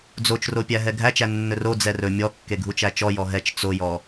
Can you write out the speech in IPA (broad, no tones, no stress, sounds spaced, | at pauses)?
d͡z o t͡ʃ r o pʲ æ ɦ ɛ ɡʱ æ t͡ʃ æ nː ɵ r o d͡z ɛ r ɵ mʲ ɔ kː e ɡʱ u t͡ʃ æ t͡ʃ ɔ j ɔ ɦ ɛ t͡ʃ t͡s o j ɔ